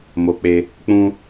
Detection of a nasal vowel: present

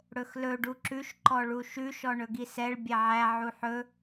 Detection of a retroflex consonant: present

